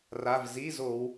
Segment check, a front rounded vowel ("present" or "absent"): absent